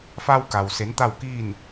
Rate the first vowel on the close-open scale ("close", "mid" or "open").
open